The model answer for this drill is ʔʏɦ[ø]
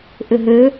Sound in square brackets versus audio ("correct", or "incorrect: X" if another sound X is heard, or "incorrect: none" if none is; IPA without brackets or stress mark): correct